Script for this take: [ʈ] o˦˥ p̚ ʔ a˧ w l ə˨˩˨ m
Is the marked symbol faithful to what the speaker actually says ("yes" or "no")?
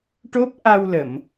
yes